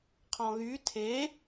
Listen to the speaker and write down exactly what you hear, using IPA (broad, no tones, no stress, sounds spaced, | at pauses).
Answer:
qʰ ɔ̃ ɣ y tʰ e